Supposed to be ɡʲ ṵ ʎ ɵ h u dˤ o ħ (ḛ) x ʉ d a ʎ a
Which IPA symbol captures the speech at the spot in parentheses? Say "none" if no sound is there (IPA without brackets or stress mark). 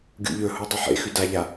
ḛ